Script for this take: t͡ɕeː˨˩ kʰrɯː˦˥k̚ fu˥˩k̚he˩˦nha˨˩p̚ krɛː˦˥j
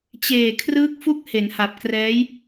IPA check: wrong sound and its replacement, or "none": none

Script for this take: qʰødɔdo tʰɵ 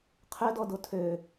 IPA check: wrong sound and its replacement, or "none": ɵ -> ø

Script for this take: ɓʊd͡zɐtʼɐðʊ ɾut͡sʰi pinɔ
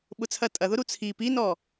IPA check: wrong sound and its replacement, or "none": d͡z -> t͡sʰ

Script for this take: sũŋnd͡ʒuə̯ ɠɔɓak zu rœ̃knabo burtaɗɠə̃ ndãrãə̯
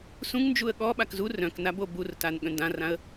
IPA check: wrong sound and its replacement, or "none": ɗ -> n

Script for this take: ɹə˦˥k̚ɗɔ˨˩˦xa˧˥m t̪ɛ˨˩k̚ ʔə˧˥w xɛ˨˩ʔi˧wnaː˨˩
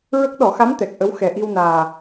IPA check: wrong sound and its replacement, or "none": none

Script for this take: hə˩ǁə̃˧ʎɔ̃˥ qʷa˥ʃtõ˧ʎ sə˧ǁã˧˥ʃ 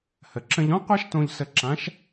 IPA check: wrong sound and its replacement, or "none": none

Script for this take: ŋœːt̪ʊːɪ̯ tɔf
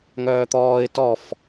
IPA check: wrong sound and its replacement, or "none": ʊː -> ɔː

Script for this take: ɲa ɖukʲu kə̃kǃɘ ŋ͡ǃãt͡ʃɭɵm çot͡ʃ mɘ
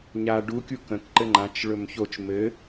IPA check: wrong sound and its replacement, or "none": none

